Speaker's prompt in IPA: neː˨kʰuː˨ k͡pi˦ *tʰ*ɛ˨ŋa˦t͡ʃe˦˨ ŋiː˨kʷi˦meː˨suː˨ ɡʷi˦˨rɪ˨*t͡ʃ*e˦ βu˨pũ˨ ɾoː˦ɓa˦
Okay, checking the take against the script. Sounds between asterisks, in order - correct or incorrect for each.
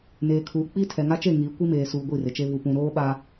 correct, correct

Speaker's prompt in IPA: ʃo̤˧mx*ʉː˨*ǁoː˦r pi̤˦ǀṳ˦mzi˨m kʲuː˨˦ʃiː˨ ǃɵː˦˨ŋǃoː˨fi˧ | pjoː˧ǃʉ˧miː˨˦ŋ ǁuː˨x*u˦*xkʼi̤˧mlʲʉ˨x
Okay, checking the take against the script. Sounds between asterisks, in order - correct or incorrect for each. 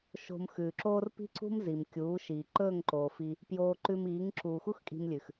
correct, correct

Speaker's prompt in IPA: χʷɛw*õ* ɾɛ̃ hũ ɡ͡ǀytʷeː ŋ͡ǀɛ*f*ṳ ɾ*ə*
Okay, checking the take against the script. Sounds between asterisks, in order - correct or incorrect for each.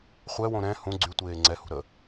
correct, incorrect, correct

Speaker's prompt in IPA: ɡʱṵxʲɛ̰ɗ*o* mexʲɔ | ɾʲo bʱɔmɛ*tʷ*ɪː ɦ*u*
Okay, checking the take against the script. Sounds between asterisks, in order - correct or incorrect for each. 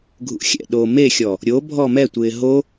incorrect, correct, incorrect

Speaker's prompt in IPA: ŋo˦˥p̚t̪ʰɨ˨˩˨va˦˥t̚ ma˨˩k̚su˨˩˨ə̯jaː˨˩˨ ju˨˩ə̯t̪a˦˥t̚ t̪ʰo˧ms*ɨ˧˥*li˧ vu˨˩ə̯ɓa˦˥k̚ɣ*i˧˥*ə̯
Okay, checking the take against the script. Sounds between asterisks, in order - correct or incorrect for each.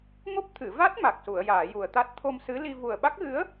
correct, incorrect

